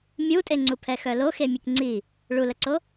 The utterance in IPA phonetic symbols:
mʲ u tʼ e ŋ͡ǀ u pʰ ɛ x œ l o x e mʲ e k ŋ͡ǀ i | ɭ u l ə ǀ o

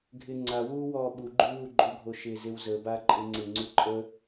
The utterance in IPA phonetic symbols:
ɡʱ ɪ ŋ͡ǀ a w uː w ɔː ɓ u ɡ͡ǃ y w u ɡ͡ǃ o ɡʱ o ʃ ɪ z ɪ w z ə b a ǃʼ ɪ ŋ͡ǀ ɪ ŋ͡ǀ u ǃʼ ə

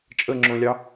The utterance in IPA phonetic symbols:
t͡ʃʼ ə ŋ͡ǁ õ lʲ ɑ

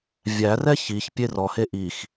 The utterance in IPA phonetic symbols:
vʲ æ r ɛ ç i ç pʲ e r ɔ h e ʔ i x

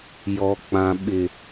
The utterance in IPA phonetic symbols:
j ɔ˨ k͡p ã˨ ɓ ɪ˨

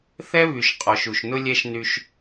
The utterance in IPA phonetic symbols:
θ ɛ˦ β y˨ ʃ qʼ ɔ˨ ʃ u˨ ʃ n ʊ˦ lʲ ɛ˦ ʃ n y˦ ʃ

